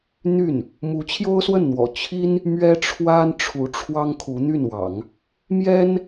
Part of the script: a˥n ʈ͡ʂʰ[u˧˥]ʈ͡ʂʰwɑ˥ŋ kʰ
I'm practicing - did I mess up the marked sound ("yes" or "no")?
no